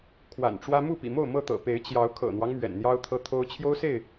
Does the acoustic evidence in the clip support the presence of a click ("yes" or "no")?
no